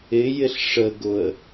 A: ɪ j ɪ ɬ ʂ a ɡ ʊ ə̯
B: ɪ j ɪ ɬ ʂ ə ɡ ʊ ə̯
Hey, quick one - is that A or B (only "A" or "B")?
B